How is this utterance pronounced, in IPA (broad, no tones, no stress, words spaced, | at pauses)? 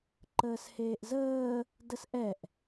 ǃəːsheːʔzəː | dəsʔɛʔ